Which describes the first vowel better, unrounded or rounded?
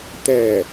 unrounded